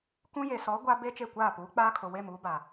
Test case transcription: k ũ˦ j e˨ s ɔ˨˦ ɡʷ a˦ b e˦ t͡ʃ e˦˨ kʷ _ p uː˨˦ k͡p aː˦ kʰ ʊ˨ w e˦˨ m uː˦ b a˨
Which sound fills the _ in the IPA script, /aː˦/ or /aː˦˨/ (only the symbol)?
aː˦˨